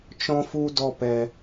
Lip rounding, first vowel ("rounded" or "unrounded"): rounded